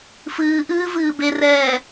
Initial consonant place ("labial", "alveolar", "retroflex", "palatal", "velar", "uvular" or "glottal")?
labial